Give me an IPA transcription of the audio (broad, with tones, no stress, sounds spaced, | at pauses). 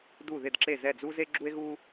d u˧˩ ð ɪ˧˩ d ǁ e˧˩ z ɛ˧˩ d͡z u˧ z e˧ ɡ͡ǁ u˧ e̯ ɣ u˧